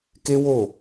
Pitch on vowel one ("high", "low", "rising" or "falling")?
high